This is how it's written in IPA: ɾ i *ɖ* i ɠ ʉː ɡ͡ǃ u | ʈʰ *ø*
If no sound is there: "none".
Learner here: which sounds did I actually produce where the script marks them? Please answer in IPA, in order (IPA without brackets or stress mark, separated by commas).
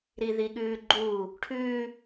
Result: ð, ʉ